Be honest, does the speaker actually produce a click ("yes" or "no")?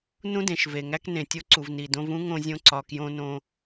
yes